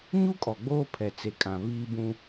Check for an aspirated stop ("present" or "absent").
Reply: present